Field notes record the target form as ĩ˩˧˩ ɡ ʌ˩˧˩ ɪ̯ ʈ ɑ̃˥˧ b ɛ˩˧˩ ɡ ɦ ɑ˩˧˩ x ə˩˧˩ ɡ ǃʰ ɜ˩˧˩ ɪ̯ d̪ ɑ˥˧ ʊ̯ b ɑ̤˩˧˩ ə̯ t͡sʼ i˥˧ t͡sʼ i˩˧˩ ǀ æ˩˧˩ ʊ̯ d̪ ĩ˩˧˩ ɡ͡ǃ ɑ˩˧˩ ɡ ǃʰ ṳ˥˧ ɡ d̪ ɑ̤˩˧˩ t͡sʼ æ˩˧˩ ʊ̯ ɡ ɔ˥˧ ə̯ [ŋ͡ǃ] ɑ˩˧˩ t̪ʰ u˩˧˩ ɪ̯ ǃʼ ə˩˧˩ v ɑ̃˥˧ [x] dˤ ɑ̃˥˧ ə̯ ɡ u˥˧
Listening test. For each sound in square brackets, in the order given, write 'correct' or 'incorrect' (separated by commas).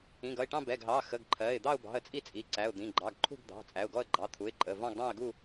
incorrect, incorrect